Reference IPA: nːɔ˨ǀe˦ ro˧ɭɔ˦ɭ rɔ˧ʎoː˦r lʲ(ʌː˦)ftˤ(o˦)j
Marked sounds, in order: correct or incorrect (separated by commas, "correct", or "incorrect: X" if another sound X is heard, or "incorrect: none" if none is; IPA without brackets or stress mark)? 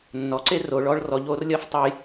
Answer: correct, correct